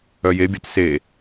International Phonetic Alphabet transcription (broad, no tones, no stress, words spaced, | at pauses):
œjebʲœt se